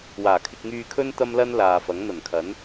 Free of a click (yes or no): yes